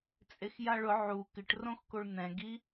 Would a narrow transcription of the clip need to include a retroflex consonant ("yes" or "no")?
yes